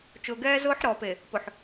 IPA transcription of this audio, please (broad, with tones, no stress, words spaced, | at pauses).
t͡ʃʊː˨ɡɛː˦zʊː˦ħɾɔː˨p e˨ | pʊ˨ħ